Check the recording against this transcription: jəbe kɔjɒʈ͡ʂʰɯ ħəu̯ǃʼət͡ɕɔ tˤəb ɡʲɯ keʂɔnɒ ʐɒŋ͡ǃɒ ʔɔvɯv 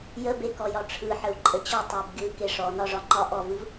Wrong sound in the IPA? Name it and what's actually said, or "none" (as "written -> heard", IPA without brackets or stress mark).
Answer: none